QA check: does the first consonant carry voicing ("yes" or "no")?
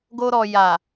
yes